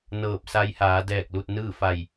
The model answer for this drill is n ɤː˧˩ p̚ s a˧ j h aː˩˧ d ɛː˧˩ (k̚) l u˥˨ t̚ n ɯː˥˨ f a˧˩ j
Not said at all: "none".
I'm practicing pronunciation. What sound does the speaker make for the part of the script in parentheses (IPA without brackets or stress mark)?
k̚